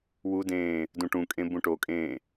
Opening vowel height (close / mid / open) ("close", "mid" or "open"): close